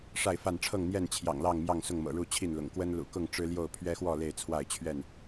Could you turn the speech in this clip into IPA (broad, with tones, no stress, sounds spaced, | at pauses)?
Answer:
ʂ a˥˨ ɪ̯ f a˥˨ n ʈ͡ʂʰ ɤ˥˨ ŋ n̪ j ɛ˥˨ n t͡ɕʰ j ɑ̰˨˩ ŋ l ɑ˥˨ ŋ m j ɑ˥˨ ŋ s ʊ˥˨ ŋ m ɤ̰˨˩ ɻ u˥˨ t͡ɕʰ i˥˨ n l ʊ̰˨˩ ŋ k w ə˦ n l ṵ˨˩ k ʊ˥˨ ŋ ʈ͡ʂ ɻ̩˦ l j o˥˨ ʊ̯ pʰ ɥ ɛ˦ x w ɔ˥˨ l e˥˨ ɪ̯ t͡sʰ w a˥˨ ɪ̯ t͡ɕʰ ɥ ɛ˥˨ n